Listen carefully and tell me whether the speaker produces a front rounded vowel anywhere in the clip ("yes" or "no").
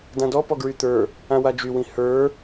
yes